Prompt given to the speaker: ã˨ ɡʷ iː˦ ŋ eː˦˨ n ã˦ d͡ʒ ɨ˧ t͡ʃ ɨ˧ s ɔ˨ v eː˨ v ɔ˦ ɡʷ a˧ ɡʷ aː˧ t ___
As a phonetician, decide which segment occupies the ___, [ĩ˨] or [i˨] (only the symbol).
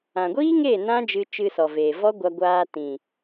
ĩ˨